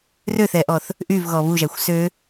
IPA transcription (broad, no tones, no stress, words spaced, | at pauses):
røθɛʔɔθ | ʔyvɣɔ βuʒæxʷ sø